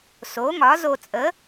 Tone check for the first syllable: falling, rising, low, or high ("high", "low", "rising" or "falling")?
rising